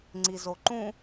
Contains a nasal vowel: yes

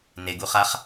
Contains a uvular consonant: yes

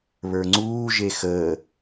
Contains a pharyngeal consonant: no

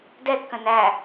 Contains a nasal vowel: yes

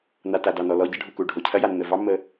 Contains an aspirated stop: yes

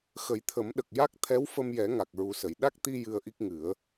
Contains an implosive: yes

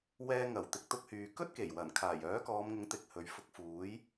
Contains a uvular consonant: no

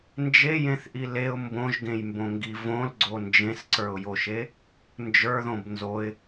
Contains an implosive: no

